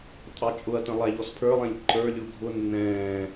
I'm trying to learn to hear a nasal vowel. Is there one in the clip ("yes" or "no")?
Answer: yes